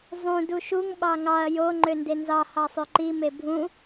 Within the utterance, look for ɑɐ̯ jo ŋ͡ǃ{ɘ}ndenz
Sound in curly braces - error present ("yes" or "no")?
yes